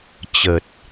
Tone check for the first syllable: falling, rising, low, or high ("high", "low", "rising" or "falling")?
low